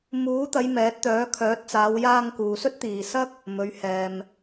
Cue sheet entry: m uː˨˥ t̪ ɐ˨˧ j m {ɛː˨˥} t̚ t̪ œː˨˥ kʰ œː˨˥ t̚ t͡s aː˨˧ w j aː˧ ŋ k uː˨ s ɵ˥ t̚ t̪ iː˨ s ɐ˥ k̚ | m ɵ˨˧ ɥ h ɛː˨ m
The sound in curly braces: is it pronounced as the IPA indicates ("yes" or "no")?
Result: yes